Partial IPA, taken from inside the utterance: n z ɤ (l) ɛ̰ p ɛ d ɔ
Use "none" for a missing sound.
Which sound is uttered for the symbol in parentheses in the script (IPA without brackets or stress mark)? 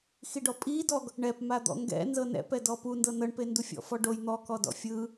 n